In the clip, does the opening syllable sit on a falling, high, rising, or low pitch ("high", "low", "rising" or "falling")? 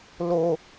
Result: low